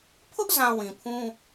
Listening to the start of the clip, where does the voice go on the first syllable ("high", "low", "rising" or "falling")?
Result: high